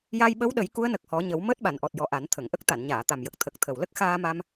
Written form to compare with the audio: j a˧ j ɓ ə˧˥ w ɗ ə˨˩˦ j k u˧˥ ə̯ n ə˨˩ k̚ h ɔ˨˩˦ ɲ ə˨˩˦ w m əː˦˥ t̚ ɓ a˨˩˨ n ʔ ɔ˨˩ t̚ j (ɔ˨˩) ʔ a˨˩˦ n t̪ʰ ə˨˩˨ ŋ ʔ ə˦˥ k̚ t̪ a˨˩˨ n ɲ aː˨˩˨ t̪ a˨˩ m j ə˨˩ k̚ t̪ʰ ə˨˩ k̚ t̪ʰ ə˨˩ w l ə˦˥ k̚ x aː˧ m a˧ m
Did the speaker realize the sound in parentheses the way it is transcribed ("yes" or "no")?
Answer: yes